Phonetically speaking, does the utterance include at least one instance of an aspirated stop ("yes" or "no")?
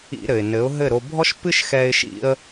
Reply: no